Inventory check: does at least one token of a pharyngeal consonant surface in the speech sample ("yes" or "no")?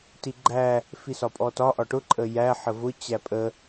yes